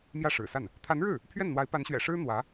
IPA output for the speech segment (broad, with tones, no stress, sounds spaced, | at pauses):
m j ä˥˩ ʂ ɻ̩˨˩ s a˥˩ n | t̪ʰ a˧˥ n ɻ ɻ̩˥˩ | pʰ ɥ ɛ˥˩ n n̪ w a˧˥ ɪ̯ p a˧˥ n ɕ ɥ ɛ̰˨˩ ʂ ɻ̩˥ n̪ w ä˧˥